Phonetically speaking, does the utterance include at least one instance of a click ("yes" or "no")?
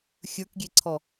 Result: yes